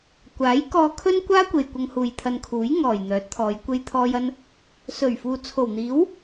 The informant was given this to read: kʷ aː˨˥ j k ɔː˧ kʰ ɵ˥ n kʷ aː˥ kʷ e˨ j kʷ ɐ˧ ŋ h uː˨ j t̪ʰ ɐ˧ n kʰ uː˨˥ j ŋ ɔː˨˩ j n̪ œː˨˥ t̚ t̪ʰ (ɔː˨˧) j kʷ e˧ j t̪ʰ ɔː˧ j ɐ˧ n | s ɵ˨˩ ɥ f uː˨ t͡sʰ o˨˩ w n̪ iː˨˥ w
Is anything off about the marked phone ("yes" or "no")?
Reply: no